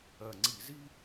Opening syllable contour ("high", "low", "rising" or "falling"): low